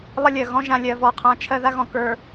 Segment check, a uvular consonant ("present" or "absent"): present